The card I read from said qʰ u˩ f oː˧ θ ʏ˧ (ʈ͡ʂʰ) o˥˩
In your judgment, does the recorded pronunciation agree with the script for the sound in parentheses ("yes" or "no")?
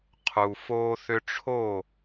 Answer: yes